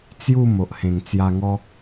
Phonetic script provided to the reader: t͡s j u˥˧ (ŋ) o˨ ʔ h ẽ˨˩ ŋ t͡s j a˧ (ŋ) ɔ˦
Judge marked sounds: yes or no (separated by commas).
no, yes